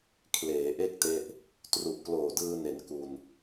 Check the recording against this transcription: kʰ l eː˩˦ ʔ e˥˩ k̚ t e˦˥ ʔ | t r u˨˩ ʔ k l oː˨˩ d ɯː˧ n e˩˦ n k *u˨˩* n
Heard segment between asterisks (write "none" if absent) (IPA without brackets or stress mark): u˧